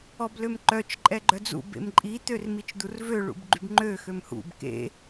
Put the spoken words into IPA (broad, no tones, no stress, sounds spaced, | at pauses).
ɔ b l ø m ǃ œ t͡ʃ ǃʼ ɛ ɡ͡ǃ œ d͡z ṵ b ḛ m ǃʼ i t̪ ø r m i t͡ʃ d̪ u r v ø ɭ ṵ b ɡ͡ǃ y b ŋ͡ǃ ø x ø m h ṵ b k ḛ